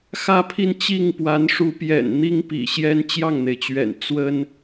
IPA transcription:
xä˥˧pʰi˥˧n t͡ɕi˥˩ŋpwa˧˥n ʂu˧˥pjɛ̰˨˩n n̪i˥ŋpḭ˨˩ɕjɛ˥n t͡ɕjɑ˥˩ŋn̪e˩ɪ̯t͡ɕɥɛ̰˨˩n t͡swə˥n

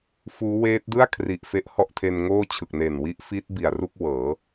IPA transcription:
fuː˦˥weː˦˥t̚ dɯ˥˩a̯kʰri˨˩ʔ fe˦˥ʔhɔ˥˩ʔtʰe˧n ŋoː˥˩ t͡ɕʰɯ˨˩k̚ne˨˩n wi˦˥ʔfiː˦˥t̚ bi˨˩a̯ru˥˩k̚ wɤː˩˦

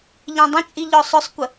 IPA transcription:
ʎɛ̃dˤə̃t͡ʃʼi ʎɔsˤʊsˤkʷə

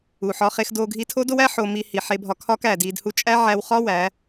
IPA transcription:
u˨ħɒ˧ χe˧xdo˧ ɡʱi˧tʰo˦do˦wæ˦ ħo˧mi˧hi˨ ħe˧bʱɒ˧kʰɒ˦k æ˨ di˧d hu˧t͡ʃʼæ˦ʕæ˧wχɒ˦ wæ˨˦

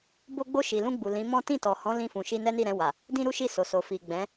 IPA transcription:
bo˧ɡ͡bo˧ ʃi˨lũ˧ɡ͡bu˨ lĩ˨˦mɔ̃˦ tĩ˦˨tɔ˨hɔ̃˨˦ lĩ˧fũ˨ ʃi˧nɛ˦ni˦˨ɾɛ̃˧ wa˨ | dĩ˦ɾu˦ʃi˦˨ so˨so˨fi˨ ɡ͡bɛ̃˨˦

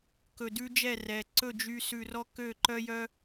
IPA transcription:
kɵ˨dʉ˦d͡ʒɛ˦˨ rɛ˨ ǀɵ˦˨d͡ʒy˧ sʉ˧rɔ˦ kø˦˨ǃœ˦jœ˦

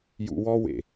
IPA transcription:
jṵ˧wɔ˦ wḛ˨

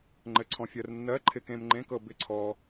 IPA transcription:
ŋ͡ǃɘ˧ǀʰɔ̃˧fʲɜ˧r nːɜ˧˥˧ǃʰɪ˧kẽ˧m ŋ͡ǃẽ˧˥˧k ɤ˧ bɪ˧˥˧ ǀʰɔ˧

